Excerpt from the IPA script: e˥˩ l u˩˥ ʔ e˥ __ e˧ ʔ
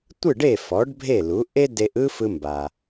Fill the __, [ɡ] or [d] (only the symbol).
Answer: d